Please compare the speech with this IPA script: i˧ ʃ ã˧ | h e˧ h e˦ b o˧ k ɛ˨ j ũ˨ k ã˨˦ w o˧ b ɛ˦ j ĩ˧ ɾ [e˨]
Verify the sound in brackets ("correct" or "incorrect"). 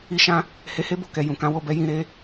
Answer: incorrect